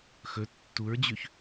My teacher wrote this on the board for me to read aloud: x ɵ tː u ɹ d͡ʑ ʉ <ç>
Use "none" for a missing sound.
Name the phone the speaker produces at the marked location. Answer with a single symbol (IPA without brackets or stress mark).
ç